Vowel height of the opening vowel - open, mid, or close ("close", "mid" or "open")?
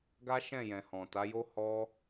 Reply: open